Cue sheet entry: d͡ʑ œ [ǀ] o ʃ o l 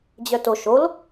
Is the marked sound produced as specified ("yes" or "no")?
no